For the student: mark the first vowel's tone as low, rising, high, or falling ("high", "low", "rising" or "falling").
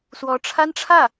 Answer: rising